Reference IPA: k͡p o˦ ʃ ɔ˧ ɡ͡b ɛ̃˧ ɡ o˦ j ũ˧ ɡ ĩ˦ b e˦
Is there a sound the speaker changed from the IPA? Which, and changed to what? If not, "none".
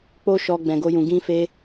b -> f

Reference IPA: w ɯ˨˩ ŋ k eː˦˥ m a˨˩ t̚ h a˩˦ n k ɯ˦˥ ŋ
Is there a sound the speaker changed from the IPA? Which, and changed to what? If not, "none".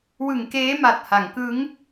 n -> ŋ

